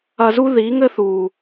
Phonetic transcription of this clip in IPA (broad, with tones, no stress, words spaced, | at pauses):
ɐ˧zu˦ ðiː˨˦ŋɘ˦ θuː˨